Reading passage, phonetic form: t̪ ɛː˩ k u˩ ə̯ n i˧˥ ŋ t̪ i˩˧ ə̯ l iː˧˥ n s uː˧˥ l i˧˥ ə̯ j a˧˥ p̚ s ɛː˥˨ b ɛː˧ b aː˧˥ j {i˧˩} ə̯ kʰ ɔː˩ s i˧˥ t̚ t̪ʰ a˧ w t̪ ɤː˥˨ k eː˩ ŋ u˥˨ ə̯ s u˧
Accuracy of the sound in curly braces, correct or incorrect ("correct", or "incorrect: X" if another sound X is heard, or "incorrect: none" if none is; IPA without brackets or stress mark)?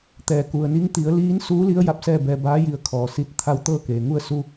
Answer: correct